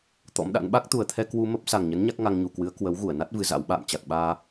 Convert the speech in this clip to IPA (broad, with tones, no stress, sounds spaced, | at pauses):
t̪ ɔ̰˧˥ m ɗ a̰˧˥ n ɓ a˦˥ k̚ t̪ u˨˩ ə̯ t̪ʰ ɛ˧ k w u˧ m ə˦˥ p̚ s a˨˩ ŋ ɲ ə˨˦ n ɲ a˦˥ k̚ ŋ a˧ ŋ ɲ u˨˩ k w ɨ˨˦ ə̯ k w ə˨˦ w ɣ u˧˩ ə̯ n a˦˥ t̚ v ɨ˧ z a̰˧˥ w ɓ a̰ː˧˨ m t͡ɕ a˨˩ k̚ ɓ aː˧